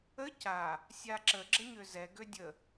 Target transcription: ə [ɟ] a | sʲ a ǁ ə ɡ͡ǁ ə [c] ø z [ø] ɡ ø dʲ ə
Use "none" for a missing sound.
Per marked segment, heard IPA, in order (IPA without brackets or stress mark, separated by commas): c, ɲ, ɛ